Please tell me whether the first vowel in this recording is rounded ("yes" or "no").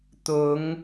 yes